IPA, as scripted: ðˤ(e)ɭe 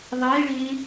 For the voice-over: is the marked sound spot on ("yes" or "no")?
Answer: yes